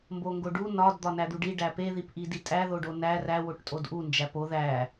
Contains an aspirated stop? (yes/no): no